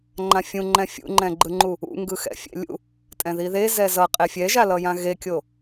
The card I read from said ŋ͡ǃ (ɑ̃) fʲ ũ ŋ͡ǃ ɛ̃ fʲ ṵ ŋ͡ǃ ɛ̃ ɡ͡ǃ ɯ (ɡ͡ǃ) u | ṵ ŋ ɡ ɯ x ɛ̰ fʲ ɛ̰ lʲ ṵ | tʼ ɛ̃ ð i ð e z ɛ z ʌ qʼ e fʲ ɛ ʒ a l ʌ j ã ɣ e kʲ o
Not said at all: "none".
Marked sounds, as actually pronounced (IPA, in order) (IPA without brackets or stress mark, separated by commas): ã, ŋ͡ǃ